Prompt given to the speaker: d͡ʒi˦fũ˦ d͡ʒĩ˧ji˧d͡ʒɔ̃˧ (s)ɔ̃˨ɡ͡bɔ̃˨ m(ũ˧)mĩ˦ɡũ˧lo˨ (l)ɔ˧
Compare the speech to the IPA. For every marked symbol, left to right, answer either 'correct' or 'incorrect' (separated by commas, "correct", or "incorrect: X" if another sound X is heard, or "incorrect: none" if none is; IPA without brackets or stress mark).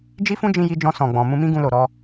correct, correct, incorrect: ɾ